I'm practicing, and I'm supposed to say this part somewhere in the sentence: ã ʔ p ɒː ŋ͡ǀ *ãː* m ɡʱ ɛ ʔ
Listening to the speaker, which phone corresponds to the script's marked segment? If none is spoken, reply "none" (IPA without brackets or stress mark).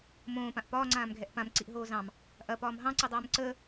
ãː